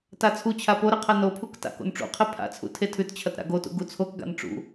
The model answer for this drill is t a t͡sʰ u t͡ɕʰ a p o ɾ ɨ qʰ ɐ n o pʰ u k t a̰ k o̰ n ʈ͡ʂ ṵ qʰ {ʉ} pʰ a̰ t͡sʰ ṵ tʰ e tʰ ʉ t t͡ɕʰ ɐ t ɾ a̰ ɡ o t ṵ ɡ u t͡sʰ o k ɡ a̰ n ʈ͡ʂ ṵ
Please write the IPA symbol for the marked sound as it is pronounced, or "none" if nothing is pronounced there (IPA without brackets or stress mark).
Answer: ɨ